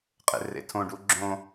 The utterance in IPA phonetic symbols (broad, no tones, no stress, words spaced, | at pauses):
qʼḛrḛtʰõɖu ɡ͡ǁõ